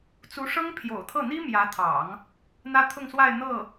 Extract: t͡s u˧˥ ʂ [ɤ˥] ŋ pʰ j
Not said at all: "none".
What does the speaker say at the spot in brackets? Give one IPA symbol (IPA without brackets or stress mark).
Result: ɤ˥